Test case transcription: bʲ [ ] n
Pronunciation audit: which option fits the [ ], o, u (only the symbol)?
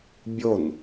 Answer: o